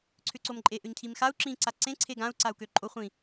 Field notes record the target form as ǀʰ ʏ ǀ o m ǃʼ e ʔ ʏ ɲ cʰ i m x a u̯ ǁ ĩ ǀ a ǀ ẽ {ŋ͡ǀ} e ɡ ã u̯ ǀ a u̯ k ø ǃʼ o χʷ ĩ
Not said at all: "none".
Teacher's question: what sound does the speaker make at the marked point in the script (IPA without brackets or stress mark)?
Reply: ǀʰ